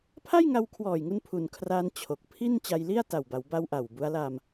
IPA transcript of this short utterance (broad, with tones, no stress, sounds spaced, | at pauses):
pʰ a˥˩ j ŋ a˧ w kʰ w ɔː˨˩ j ŋ u˧ n pʰ u˨˩ n kʰ r aː˧ n t͡ɕʰ o˨˩ k̚ pʰ i˥˩ n t͡ɕ a˧ j l i˥˩ a̯ t a˨˩ w b a˩˦ w b a˧ w ʔ a˨˩ w b u˦˥ a̯ l a˧ m